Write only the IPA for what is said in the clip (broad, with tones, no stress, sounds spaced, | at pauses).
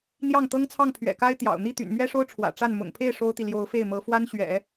n̪ j ɑ˥˩ ŋ t̪ ɤ˥ ŋ t͡sʰ ɑ˥˩ ŋ pʰ ɥ ɛ̰˨˩ k a˥ ɪ̯ t̪ j ɑ̰˨˩ ʊ̯ n̪ i˥˩ t̪ y̰˨˩ n m ɥ ɛ˥ ʂ o˥ ʊ̯ ʈ͡ʂʰ w ä̰˨˩ ʈ͡ʂ a˥˩ n m ʊ̰˨˩ ŋ pʰ e˥˩ ɪ̯ ʂ o˥ ʊ̯ t̪ i˨ l j o˧˥ ʊ̯ f e˥˩ ɪ̯ m ɤ˧˥ f w a˥ n ɕ ɥ ɛ̰˨˩˦